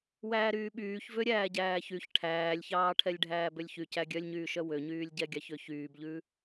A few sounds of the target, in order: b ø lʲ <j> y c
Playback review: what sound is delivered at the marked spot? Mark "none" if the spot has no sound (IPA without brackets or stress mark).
ç